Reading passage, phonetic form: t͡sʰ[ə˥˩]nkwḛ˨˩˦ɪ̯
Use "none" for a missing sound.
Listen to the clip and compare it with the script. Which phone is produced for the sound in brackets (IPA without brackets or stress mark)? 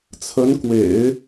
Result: ə˧˥